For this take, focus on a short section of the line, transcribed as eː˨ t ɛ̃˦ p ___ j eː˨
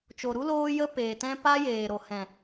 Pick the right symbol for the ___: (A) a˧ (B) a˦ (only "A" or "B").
B